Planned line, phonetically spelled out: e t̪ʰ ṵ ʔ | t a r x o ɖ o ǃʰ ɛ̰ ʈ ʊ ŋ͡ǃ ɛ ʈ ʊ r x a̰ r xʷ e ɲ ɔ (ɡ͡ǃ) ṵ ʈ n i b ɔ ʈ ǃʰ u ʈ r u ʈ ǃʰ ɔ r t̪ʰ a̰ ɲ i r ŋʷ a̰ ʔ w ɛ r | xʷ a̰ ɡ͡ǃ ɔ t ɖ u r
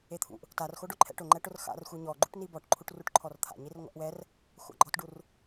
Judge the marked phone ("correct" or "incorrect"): correct